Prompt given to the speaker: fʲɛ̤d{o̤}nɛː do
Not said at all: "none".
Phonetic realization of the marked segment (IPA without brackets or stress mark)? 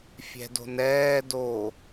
o̤